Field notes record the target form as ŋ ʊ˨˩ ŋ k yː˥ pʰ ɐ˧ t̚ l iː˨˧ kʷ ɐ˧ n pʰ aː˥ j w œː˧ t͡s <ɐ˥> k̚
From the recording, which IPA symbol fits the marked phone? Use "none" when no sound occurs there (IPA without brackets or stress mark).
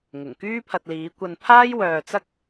ɐ˥